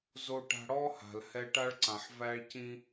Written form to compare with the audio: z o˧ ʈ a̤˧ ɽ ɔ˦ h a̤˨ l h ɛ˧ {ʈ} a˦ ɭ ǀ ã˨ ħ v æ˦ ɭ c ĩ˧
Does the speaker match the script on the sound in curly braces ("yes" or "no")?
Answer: yes